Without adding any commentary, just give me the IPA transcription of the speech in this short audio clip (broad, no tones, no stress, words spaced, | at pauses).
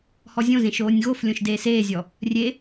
hɔzʲõzẽʃ oːnʲɣoflʲõʃ deːseːzʲɔ | rʲe